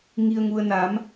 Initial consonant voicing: voiced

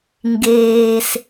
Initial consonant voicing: voiced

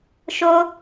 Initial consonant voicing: voiceless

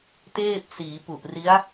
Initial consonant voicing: voiceless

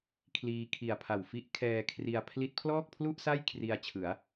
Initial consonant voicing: voiceless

